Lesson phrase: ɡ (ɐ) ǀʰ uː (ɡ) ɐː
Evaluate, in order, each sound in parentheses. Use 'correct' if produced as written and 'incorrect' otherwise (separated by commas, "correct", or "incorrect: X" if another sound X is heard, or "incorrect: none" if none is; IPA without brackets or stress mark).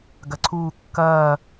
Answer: correct, incorrect: kː